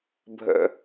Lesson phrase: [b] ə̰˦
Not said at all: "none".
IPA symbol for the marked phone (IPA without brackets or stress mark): bʱ